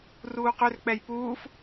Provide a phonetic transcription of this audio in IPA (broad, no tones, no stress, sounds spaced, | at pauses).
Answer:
r uː q ʏ r k͡p ɛ j p uː f